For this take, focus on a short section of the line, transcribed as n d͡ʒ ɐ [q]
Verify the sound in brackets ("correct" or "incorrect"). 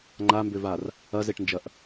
incorrect